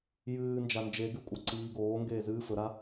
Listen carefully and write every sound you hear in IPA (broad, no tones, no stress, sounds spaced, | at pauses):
j ɨː n d͡ʒ a n d͡ʒ e ɡ ʉ kʷʼ ɐ ǀ iː ɡ oː ŋ ɡ eː z ɨː f ɵ ɾ a